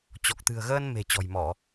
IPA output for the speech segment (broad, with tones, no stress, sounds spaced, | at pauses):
t͡ɕ ɔ˨˩ k̚ t̪ ɨ̤˨˩ ə̯ ɣ əː˧ n m e̤˨˩ t͡ɕ ɔ̤˨˩ j m ɔ˧˩˨